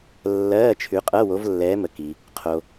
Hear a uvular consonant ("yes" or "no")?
yes